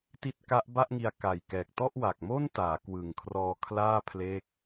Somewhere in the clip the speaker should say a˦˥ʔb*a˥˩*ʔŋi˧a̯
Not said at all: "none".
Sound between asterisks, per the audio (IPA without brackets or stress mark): a˥˩